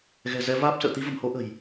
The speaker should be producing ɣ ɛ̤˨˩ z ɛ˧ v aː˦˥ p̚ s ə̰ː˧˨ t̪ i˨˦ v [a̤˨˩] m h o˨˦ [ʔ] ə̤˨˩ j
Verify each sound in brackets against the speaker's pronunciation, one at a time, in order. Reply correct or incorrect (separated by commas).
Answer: incorrect, correct